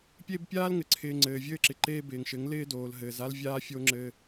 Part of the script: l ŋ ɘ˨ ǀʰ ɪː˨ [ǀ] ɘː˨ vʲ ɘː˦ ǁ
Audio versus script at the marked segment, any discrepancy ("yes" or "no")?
yes